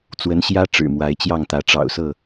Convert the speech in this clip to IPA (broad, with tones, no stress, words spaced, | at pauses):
t͡swə˨˦nɕjä˦ ʈ͡ʂɻ̩˨˩mwa˨˦ɪ̯t͡ɕjɑ˥˨ŋt̪ä˨˦ ʈ͡ʂɑ̰˨˩ʊ̯sɤ˥˨